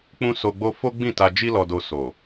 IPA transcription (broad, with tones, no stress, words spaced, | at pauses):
k͡pũ˦so˧ɡ͡bo˦ fo˦ɡ͡bĩ˦˨ta˧ d͡ʒi˦lɔ˧do˧ so˨